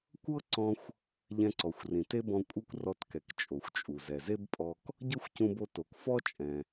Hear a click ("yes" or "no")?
yes